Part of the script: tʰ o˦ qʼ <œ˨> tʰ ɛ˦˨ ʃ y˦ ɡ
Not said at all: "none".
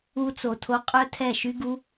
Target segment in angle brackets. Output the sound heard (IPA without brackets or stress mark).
œ˦